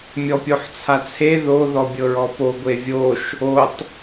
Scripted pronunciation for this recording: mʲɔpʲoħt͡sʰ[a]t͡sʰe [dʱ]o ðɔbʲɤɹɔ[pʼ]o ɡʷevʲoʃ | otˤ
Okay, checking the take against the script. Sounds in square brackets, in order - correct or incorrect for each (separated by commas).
correct, incorrect, incorrect